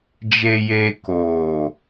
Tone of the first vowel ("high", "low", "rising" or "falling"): low